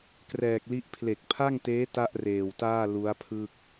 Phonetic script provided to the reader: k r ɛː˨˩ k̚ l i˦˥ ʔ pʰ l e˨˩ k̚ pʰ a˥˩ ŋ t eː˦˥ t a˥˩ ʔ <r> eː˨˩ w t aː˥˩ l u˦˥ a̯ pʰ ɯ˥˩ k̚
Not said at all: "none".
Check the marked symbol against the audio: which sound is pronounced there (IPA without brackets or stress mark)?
r